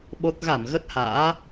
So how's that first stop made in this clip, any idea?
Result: implosive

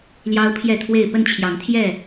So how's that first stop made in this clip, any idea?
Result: aspirated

